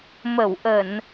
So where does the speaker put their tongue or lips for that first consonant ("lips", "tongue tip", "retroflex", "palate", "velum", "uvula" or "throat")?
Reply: lips